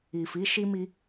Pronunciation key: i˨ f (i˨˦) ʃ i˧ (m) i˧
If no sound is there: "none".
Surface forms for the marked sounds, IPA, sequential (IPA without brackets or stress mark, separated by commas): i˨˦, m